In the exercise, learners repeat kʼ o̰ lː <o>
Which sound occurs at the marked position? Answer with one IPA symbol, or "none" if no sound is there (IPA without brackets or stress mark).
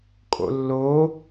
o